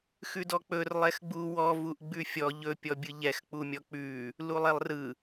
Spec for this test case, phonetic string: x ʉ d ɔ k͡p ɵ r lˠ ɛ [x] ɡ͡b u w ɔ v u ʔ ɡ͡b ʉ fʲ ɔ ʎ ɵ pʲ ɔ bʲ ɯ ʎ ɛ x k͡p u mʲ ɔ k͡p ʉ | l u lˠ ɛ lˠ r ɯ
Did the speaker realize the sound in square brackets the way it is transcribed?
yes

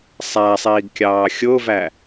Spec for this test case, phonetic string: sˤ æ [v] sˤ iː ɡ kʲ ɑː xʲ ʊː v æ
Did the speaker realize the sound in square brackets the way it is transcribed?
no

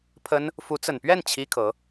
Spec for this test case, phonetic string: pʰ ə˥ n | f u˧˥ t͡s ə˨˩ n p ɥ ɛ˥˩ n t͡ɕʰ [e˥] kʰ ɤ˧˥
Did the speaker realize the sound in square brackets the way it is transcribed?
no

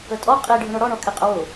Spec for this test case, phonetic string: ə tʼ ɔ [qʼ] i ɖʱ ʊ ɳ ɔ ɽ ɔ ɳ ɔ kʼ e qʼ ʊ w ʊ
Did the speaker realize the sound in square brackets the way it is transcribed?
yes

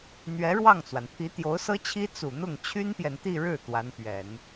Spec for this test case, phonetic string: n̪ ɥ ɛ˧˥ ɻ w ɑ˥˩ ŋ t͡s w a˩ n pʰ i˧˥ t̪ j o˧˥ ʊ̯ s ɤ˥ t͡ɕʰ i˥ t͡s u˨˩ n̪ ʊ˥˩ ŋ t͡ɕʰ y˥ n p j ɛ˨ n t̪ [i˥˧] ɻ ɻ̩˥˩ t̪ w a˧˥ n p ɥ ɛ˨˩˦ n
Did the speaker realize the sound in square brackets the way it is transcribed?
yes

